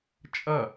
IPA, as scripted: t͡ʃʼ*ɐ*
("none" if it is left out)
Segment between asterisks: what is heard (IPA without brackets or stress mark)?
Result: ɐ